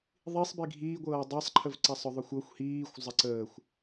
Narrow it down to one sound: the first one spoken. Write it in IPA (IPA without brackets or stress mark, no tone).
ðˤ